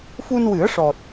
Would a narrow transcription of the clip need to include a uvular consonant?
no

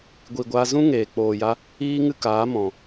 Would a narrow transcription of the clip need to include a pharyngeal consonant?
no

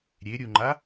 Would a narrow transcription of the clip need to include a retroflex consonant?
no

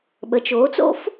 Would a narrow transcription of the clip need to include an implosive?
yes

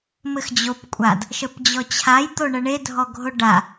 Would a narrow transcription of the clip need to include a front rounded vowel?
no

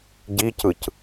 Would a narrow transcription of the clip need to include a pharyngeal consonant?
no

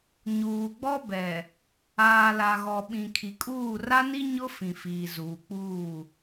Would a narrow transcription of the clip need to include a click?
no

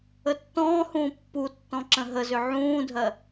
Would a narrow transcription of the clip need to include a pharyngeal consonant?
yes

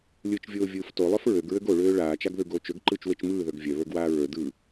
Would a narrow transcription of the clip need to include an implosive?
no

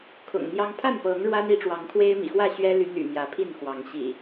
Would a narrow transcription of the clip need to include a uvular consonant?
no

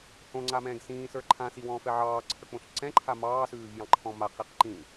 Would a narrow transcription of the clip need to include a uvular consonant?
yes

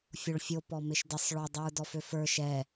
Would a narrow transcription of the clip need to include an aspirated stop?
no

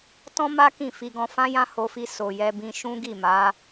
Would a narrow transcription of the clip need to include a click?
no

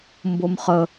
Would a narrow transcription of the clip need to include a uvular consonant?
yes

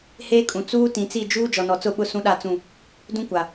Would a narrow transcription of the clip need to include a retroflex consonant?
no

